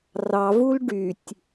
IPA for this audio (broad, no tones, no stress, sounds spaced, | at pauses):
r ɑ v u l ɖ y tʲ